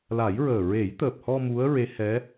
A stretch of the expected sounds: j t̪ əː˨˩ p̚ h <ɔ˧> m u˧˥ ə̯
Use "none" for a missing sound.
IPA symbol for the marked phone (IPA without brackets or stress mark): ɔ˧